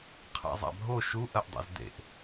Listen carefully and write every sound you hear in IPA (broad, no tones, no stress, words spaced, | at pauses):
qʰa̰zˤa̰bʱo ʃu ʔɐʔdˤḛzd̪ḛʔ